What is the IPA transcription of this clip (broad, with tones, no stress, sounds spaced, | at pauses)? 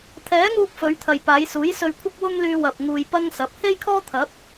t̪ʰ ɛː˨˥ ŋ uː˧ k̚ f ɵ˨˧ ɥ t̪ʰ ɐ˨ j p aː˨˧ j s uː˨˥ j s ɵ˧ ɥ kʷʰ ɐ˥ k̚ w ʊ˥ ŋ l yː˧ w ɐ˨ p̚ ŋ uː˧ j p ɐ˥ ŋ s ɐ˨˥ p̚ h e˥ j kʰ ɔː˥ t̪ʰ ɐ˨˥ p̚